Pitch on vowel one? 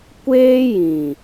high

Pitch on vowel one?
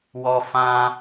high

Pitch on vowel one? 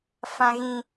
high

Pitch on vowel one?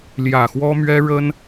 low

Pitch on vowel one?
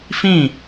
falling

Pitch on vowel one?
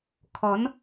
rising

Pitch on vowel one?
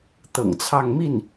low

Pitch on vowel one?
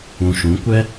low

